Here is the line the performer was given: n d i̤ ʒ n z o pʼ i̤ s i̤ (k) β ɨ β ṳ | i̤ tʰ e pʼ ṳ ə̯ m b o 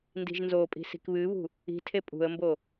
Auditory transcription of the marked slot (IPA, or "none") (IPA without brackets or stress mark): k